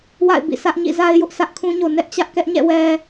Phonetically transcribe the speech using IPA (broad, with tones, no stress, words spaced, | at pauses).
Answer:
wa̰˦˨ɪ̯bḭ˦˨sä˦ʔ ɲḭ˦˨za˦ɪ̯jʊ˦ʔ sʰä˦ʔkʰũ˦ɲo˨ nɛ˦ʔt͡ɕä˦ʔ kɛ˦ʔɲɛ̰˦˨ wɛ˦